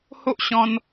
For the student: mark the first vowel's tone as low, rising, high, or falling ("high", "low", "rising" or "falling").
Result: high